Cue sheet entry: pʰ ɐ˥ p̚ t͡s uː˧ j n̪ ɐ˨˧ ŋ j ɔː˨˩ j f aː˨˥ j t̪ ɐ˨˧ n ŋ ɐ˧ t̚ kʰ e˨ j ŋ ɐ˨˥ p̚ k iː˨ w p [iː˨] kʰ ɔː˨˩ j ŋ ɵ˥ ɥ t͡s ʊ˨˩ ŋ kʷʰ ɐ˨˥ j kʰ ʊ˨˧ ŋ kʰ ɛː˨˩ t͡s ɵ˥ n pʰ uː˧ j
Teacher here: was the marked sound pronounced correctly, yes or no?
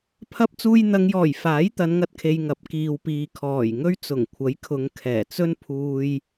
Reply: yes